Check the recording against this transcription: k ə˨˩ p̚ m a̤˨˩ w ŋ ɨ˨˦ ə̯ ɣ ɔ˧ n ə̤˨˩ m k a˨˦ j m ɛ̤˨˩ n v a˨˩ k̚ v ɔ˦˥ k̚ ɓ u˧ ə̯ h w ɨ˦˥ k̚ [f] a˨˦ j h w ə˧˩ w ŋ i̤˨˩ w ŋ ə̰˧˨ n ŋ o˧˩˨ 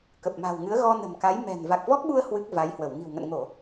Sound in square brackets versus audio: incorrect: v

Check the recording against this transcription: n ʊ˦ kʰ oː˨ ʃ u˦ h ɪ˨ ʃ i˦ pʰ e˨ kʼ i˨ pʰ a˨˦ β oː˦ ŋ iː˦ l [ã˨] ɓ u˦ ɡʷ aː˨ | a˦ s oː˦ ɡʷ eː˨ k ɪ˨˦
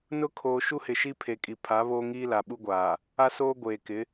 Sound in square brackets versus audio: incorrect: a˨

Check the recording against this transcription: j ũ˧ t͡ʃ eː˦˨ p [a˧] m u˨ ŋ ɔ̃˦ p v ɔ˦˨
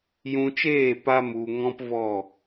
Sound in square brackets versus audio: correct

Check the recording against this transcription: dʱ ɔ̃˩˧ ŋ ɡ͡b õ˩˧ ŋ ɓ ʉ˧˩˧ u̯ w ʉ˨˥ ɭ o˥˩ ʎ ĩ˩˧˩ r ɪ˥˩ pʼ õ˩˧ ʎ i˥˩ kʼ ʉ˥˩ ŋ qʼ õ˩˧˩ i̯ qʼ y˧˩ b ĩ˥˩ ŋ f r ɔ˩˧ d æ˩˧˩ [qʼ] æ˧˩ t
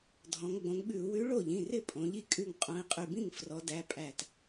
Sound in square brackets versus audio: incorrect: pʼ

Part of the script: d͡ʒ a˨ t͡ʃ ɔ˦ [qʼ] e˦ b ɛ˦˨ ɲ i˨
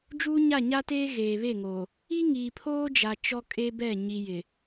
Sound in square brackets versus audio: incorrect: kʼ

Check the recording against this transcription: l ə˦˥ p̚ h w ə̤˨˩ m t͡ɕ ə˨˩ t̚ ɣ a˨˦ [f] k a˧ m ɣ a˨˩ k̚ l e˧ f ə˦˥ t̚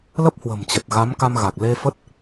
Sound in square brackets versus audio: incorrect: m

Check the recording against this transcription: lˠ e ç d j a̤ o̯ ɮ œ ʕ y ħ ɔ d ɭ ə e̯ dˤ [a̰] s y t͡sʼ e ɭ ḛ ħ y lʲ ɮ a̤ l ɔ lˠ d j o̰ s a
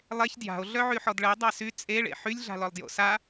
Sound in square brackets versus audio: incorrect: a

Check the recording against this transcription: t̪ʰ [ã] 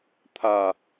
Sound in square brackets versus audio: incorrect: a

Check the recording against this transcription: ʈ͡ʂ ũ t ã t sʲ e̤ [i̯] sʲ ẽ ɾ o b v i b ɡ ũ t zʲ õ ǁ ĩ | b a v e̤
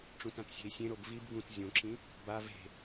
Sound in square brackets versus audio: correct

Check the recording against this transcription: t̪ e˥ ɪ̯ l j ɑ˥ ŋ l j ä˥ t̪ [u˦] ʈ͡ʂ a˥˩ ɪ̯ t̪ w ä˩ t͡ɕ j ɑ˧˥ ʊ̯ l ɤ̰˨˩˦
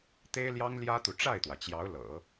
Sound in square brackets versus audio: incorrect: u˨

